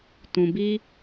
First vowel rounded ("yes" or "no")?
yes